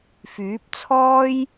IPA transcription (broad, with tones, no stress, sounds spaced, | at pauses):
f yː˨˥ p̚ t͡sʰ ɔː˥ j